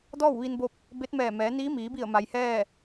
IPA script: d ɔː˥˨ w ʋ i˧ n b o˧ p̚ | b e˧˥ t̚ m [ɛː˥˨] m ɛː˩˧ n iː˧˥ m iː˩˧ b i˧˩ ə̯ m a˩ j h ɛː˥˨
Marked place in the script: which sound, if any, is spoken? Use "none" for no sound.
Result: ɛː˧˩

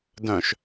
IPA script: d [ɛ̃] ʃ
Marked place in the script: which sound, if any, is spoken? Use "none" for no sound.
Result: œ̃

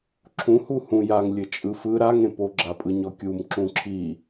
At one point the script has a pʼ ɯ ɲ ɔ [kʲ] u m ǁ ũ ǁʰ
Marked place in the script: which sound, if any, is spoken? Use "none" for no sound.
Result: kʲ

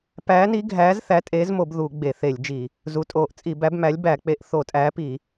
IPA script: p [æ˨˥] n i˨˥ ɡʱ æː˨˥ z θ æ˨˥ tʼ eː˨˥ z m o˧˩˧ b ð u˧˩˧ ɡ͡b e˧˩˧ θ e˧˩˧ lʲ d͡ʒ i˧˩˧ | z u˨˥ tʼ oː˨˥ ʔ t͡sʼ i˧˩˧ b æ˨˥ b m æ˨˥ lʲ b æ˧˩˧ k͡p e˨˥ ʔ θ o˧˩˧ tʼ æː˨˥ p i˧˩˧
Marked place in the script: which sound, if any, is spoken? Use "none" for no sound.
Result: æː˨˥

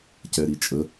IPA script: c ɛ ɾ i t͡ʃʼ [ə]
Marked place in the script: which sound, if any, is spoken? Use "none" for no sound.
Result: ə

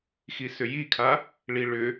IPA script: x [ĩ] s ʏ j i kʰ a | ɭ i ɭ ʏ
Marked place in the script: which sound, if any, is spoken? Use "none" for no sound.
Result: i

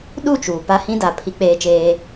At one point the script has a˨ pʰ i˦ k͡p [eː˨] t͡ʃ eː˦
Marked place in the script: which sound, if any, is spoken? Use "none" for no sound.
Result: eː˦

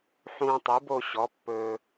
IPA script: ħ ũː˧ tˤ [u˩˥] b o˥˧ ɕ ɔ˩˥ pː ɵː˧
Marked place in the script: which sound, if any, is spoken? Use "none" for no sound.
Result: u˩˥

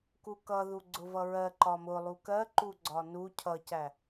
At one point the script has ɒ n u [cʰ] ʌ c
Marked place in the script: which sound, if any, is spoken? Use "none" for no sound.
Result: cʰ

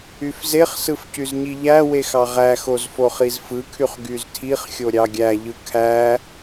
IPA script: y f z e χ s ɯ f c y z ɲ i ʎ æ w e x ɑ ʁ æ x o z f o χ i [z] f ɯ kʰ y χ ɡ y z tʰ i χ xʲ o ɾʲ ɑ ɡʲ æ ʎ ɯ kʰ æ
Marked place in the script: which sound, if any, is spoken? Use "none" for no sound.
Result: z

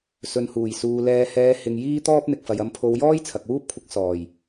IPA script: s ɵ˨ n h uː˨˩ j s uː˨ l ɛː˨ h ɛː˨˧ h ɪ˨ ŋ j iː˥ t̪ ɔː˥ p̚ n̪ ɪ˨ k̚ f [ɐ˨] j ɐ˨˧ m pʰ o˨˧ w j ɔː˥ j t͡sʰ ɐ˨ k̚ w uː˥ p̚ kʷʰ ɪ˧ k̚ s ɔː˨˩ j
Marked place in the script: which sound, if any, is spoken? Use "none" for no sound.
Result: ɐ˨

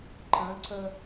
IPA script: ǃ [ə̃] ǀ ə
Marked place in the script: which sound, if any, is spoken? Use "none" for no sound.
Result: ə̃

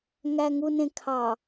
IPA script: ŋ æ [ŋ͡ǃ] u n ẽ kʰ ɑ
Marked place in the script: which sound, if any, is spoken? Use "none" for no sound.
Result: ŋ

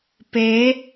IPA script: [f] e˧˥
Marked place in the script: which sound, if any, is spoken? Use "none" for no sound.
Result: p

